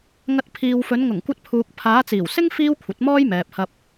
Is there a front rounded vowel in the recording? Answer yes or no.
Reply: no